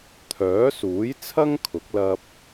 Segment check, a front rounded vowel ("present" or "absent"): present